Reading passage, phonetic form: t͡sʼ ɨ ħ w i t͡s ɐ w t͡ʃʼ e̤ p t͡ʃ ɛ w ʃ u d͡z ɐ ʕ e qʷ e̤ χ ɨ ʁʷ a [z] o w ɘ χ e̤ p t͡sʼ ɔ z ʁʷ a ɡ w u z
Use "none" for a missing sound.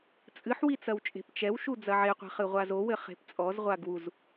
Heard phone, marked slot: z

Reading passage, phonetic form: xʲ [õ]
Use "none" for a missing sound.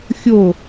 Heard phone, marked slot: o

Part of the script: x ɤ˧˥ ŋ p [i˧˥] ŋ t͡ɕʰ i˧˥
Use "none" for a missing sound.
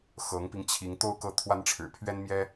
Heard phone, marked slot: i˧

